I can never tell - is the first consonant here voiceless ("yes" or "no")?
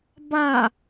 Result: no